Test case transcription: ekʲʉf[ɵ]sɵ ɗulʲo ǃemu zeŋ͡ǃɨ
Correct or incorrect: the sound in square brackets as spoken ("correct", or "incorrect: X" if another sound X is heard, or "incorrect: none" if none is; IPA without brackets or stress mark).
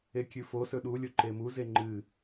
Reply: incorrect: o